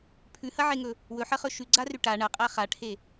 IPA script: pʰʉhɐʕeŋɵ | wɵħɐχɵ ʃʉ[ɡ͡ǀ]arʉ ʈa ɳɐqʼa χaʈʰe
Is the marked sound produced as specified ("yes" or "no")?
yes